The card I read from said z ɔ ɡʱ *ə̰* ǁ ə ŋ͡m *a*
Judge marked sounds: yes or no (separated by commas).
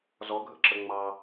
yes, no